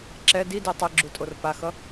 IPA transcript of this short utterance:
ǁ ɛ d i d i tˤ i ɡ͡ǁ u tʼ o r p a x ʌ

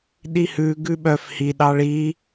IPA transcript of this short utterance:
ɗ i h ʉ ɡ ʉ ɓ œ f h i ɗ ɑ ɭ i

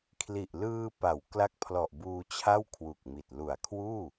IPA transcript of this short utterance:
kʰ l i˨˩ ʔ l ɯː˧ p a˩˦ w k l a˦˥ k̚ pʰ l ɔ˨˩ ʔ b uː˧ t͡ɕʰ a˥˩ w kʰ w u˨˩ k̚ m i˨˩ t̚ l u˨˩ a̯ kʰ w uː˥˩

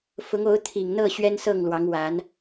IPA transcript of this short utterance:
f ʊ˧˥ ŋ o˧˥ ʊ̯ t̪ʰ i˨˩ ŋ n̪ ɤ˥˩ ɕ ɥ ɛ˥ n s ɤ˥˩ ŋ l w ɑ˧˥ ŋ w a˧˥ n

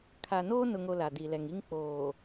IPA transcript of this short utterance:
kʰ a˨ n oː˦ n ʊ˨ ŋ o˨ l a˨ d i˨ l ɛ˨ ŋ i˦ ŋ k͡p oː˨

